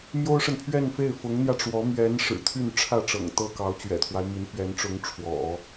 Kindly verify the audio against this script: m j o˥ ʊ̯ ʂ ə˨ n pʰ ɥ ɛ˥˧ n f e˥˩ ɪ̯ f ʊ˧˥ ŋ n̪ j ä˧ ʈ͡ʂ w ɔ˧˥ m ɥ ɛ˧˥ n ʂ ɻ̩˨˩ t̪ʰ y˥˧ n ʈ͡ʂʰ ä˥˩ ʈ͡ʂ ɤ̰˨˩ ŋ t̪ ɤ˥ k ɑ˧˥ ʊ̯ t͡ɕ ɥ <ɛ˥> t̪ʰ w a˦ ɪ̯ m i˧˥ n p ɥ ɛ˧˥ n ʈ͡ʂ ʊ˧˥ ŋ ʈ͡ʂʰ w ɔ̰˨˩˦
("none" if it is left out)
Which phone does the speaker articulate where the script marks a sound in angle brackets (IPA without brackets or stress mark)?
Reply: ɛ̰˨˩